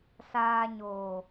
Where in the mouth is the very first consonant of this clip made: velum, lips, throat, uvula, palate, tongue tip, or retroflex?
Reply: tongue tip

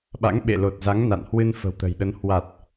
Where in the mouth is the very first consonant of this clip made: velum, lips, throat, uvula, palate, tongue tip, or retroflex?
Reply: lips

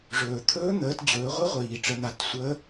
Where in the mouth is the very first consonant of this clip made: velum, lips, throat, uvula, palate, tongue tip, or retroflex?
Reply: retroflex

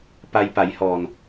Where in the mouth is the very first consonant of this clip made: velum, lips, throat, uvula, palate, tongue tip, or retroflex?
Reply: lips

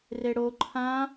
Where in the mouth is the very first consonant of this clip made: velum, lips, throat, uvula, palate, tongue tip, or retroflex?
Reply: tongue tip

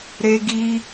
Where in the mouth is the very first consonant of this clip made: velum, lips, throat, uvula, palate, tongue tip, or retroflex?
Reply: tongue tip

